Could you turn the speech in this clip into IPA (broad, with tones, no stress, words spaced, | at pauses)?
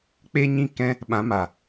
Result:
k͡pe˦ɲĩ˦kɛ̃˦ | ɓã˨˦ma˨